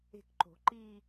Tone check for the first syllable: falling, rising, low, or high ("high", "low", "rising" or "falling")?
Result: falling